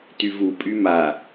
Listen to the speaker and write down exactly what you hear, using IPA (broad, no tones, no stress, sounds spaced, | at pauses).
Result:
t y v u pʼ y m a